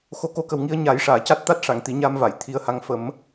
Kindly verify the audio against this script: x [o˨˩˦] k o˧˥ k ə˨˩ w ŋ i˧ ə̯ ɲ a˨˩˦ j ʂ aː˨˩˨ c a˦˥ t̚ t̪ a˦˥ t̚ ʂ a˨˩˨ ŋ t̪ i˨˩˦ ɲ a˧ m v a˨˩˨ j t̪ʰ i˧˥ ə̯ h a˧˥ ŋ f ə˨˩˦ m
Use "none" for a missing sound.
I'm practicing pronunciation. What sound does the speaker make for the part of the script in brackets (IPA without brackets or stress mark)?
o˨˩˦